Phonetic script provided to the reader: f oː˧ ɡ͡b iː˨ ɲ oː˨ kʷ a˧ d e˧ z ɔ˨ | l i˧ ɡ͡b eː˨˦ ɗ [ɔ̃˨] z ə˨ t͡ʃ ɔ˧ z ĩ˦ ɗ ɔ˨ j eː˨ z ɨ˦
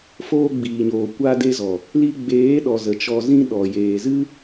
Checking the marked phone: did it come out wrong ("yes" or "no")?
yes